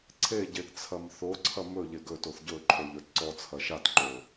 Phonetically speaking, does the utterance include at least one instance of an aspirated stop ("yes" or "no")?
yes